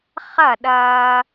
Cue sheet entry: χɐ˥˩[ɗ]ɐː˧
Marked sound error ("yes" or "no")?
no